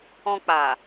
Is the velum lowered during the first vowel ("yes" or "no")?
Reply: yes